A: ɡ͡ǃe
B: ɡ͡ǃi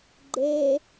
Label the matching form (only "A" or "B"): A